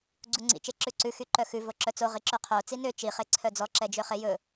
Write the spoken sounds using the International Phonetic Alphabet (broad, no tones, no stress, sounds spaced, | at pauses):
ɡ͡ǀ u ŋ͡ǀ ḭ t͡ʃ e ǁ ʉ ǀ ʉ x y ǃ œ x ʉ v o ǁ œ t͡s o ʁ i ǁ ʉ qʰ o t͡s i n ø t͡ʃ i χ e ǀʰ œ d͡z ɔ ǁ ɛ d͡ʒ ø χ e j ɵ